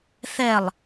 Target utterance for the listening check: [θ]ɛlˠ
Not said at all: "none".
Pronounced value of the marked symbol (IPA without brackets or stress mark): θ